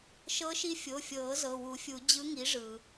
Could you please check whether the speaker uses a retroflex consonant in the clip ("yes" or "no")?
yes